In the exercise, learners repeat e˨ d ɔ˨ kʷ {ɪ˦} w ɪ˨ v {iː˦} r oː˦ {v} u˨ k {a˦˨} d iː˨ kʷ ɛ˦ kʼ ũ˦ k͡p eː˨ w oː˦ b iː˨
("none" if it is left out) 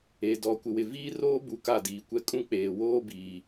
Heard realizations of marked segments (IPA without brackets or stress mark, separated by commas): ɪ˨, iː˦, b, a˦˨